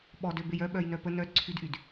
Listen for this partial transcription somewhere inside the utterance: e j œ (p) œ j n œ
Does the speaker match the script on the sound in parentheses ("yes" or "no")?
no